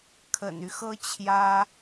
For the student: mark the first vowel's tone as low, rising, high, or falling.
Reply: low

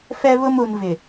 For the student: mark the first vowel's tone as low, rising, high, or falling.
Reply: high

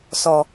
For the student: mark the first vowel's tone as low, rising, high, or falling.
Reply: low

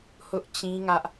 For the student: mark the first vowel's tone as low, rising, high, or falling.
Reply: high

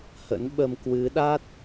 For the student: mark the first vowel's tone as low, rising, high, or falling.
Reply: rising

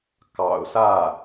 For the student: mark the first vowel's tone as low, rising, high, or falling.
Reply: low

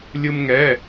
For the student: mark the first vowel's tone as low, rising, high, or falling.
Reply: high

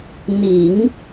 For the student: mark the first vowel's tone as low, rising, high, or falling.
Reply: low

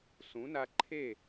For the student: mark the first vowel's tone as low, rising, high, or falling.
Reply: rising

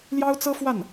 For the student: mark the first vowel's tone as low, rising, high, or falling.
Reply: high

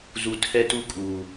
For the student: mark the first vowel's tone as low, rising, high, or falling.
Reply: low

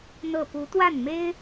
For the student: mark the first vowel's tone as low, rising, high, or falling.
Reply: falling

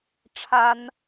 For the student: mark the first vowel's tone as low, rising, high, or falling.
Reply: high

